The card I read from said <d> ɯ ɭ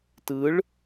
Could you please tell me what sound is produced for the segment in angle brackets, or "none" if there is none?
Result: t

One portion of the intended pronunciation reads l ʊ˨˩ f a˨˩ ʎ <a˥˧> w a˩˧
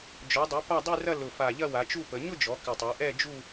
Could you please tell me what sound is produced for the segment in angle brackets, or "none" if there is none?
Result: ɐ˥˧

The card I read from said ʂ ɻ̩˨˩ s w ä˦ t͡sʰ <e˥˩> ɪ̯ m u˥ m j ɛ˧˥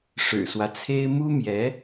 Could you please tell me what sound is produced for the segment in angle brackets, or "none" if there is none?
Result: e˥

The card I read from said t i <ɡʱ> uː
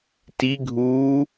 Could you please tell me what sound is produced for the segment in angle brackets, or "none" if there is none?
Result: ɡʱ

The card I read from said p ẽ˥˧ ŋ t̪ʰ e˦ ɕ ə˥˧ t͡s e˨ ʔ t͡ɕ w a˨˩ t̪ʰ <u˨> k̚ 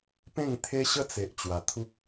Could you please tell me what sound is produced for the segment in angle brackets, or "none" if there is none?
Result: u˦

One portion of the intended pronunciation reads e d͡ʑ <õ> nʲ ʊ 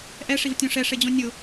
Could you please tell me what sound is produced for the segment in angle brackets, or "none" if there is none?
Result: õ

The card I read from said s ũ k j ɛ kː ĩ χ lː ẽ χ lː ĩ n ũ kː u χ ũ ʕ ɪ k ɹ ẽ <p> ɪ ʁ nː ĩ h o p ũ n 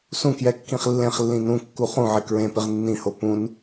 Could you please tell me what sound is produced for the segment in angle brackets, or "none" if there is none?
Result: p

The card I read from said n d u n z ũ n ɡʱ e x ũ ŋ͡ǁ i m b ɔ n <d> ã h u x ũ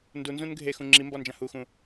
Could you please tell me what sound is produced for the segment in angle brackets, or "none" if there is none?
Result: d͡ʒ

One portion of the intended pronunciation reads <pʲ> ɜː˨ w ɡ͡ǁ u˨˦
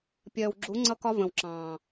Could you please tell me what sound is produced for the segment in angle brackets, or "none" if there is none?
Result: pʲ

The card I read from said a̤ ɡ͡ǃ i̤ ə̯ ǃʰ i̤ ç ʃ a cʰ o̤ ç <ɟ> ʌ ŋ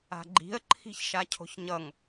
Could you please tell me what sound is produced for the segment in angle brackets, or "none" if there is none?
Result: ɲ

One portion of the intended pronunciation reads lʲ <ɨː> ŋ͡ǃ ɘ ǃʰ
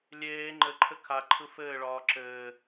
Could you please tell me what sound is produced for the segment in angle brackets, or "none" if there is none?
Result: eː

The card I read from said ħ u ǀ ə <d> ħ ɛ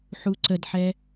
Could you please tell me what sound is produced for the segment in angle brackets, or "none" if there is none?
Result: d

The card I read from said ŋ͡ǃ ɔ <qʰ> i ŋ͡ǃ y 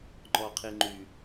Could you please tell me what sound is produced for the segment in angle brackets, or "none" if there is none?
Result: qʰ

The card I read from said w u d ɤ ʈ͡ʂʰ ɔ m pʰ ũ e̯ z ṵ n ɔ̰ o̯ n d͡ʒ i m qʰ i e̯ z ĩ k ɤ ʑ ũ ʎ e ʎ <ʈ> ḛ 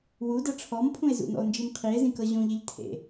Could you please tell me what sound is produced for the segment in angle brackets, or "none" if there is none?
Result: tʰ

